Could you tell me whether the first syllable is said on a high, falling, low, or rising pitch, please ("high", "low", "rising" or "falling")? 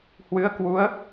rising